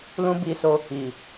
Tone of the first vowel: high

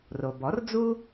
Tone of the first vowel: low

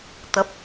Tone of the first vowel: rising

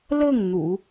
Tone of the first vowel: falling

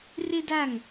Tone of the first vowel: high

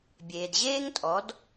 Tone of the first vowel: low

